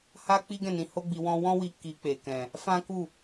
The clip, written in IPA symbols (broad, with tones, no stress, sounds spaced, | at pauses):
h a˦ k͡p i˦ ɡ ɛ̃˦˨ n ĩ˨˦ h o˦ ɡ͡b i˧ w ɔ̃˧ w ɔ̃˦ w i˧ k i˧ k͡p e˨ k ɛ̃˨ | f ã˦ k u˦˨